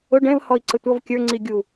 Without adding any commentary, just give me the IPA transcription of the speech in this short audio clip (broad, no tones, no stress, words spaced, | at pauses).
ʊ ɖɛ̃v hɔi̯ǀətʷʌv kʲə˞ ŋ͡ǀiɡʲu